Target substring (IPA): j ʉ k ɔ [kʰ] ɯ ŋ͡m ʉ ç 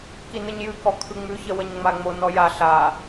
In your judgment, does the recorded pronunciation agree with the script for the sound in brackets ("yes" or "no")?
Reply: yes